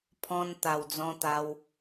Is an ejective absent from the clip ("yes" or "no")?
yes